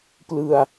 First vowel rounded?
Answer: no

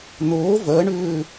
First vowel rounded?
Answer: yes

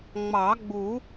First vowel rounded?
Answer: no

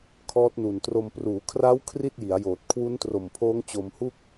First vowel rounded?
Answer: yes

